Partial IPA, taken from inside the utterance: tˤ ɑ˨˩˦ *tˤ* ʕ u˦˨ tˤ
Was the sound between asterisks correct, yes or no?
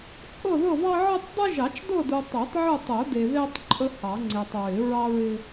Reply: yes